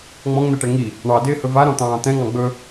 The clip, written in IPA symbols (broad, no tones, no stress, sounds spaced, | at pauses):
ŋ͡m ɔ̃ ŋ n̪ ɛ ʈ ɛ ŋ i | ɳ ɑ d ɪː h ɵ v a ɾ ɔ̃ t̪ ɑ̃ː t̪ ɛ̃ ŋ ɑ̃ ɡ͡b ɵ